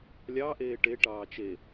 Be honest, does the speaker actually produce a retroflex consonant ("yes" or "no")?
yes